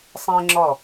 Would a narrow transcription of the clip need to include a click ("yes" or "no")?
yes